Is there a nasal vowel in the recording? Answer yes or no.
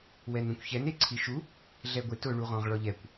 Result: yes